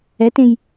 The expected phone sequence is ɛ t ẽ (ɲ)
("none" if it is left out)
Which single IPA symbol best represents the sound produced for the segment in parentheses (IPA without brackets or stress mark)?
j